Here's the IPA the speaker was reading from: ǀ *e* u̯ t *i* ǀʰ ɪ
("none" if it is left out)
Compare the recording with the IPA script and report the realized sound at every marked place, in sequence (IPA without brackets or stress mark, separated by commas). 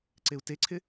e, e